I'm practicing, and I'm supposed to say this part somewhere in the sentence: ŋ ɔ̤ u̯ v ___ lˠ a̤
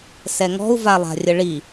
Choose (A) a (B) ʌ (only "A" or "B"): A